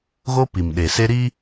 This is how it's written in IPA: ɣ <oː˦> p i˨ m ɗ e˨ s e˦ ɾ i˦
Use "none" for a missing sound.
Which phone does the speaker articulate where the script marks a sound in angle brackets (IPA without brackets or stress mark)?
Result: o˦